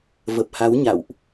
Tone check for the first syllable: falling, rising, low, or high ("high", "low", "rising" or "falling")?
low